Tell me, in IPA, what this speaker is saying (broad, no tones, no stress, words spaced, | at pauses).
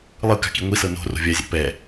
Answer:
lˠɯ ka̤kiŋʷisɤ no̤ro̤ vʲazʲa̰ pɛ